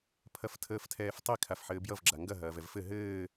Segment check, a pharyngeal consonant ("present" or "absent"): present